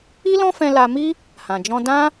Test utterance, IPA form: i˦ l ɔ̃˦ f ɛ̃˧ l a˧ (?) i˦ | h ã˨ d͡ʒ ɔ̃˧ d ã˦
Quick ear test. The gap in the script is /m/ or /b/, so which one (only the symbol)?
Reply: m